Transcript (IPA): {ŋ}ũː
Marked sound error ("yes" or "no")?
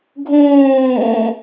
yes